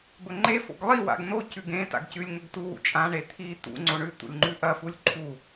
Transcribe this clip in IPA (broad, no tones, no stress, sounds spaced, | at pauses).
b ɵ ŋ͡ǃ e f o̰ ɡ lˠ i w a̰ ɡ n o c ʉ ɡ ẽ t a̰ ɡ c ʉ lʲ ŋ ɵ ɡ t u w ṵ t͡ʃʼ ã ɳ e t̪ʰ i t̪ ṵ ŋ͡ǀ o ɳ ʉ t̪ ṵ lʲ ŋ͡ǃ ʉ ʔ ɐ f u lʲ ǃʰ u